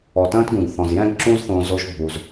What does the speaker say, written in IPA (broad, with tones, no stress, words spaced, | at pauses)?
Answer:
ɔ˨tə̃ː˦tɡũ˨ɡθɔ̃˨z jɛ̃˦ɡǁũ˦zθõ˧ zo˦ʒbʱu˧z